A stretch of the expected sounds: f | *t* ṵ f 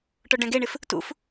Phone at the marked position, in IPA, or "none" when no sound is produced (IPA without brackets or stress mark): t